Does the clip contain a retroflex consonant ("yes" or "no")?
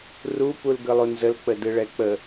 yes